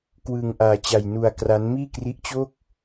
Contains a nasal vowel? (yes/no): no